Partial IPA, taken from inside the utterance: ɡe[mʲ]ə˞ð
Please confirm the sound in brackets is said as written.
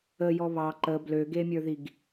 yes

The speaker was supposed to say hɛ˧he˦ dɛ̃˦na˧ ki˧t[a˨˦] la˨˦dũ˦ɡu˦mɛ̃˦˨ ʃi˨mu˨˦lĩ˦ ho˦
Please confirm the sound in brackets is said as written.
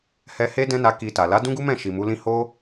no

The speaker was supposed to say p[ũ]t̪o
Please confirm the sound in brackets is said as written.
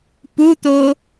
no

